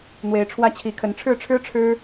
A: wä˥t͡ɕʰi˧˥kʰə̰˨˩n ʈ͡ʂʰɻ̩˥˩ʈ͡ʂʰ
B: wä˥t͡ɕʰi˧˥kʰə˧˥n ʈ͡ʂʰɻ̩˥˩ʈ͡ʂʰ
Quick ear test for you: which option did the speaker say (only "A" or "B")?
B